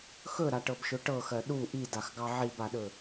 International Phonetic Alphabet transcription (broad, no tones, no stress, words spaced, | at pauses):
xɵɾaʈɤbʃɵ ʈɤxɜ ɗu ʔidaxɡɑ ʕibaɗɵ